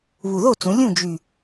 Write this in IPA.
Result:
β u˨˩ ð o˥˨ t͡s ũ˩˧ lʲ ũ˥˨ d͡ʒ y˨˩

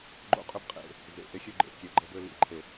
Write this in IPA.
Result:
ɡ͡ǃ o̰˦ qʼ ø˦ b qʼ ḛ˨ | z ḛ˨ ʔ e˦ xʲ ø˦ ɡ͡ǃ ḛ˨˦ kʲ e˨ ɐ̯ ɡ͡ǃ ɤ˦ b ø˦ l ḭ˨ ǃʰ e˨

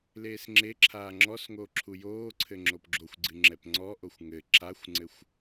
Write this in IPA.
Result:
l eː s ŋ͡ǁ e ǁʰ aː ŋ͡ǁ ɔ s ŋ oː ǁʰ u j oː ǀʰ ɘ ŋ͡ǁ o p ɡ͡ǁ o xʷ ɡ͡ǀ ɨ ŋ͡ǁ ɛ p ŋ͡ǀ ɔ ʔ o xʷ ŋ ɘ ǁ a xʷ ŋ͡ǀ ɘ xʷ

